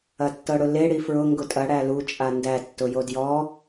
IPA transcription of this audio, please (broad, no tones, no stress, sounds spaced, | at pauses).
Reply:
ɐ tː ɤ ɽ ʊ l e ɽ i f ɹ ʊ ŋ ɡ ʊ tʼ ɐ ɽ æ l u t͡ʃʼ a n d æ tː ʊ j o d j ɔ